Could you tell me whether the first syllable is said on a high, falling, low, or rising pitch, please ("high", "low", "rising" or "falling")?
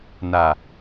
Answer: low